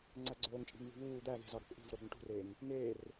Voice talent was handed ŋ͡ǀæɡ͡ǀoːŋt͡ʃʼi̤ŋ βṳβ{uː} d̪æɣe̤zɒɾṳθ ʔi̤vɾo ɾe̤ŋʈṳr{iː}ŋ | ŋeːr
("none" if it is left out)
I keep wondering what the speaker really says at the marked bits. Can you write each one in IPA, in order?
uː, eː

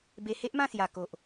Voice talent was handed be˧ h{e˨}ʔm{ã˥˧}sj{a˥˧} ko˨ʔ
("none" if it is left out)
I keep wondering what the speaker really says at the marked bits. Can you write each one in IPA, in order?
e˦, ã˥˧, a˨˩

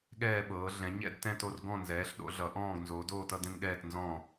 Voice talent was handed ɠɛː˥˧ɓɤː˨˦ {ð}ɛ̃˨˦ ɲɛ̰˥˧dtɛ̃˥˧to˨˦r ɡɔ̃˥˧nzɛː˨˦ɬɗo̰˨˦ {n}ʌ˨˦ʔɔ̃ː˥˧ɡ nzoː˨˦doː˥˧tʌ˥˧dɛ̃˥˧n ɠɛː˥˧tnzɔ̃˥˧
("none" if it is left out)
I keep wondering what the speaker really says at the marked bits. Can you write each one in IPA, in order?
ɮ, ɮ

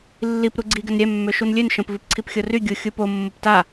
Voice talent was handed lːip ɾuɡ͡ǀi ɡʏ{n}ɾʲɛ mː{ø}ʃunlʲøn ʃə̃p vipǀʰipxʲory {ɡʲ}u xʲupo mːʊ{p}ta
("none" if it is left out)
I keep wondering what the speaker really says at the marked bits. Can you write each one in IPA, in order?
n, ø, ɡʲ, p

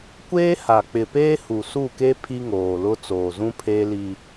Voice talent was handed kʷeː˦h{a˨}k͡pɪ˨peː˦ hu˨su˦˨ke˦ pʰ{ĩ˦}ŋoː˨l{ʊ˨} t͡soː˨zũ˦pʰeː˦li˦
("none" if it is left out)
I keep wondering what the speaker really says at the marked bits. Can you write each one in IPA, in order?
a˨, i˦, ʊ˦

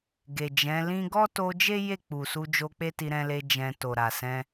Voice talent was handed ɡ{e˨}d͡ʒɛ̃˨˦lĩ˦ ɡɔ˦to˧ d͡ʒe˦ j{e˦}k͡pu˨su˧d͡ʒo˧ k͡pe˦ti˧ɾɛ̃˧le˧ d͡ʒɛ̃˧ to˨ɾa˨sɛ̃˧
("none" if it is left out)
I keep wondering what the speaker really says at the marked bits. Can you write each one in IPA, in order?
e˨, e˦˨

